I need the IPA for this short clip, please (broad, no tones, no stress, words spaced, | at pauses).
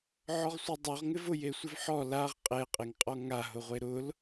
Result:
ʕɔʁsʷedˤoʁ ŋɪvʊ jesʷɪvħɔ laʁ qʼe qʼeŋqʼɔŋa ɦʊʁʷeɾʊl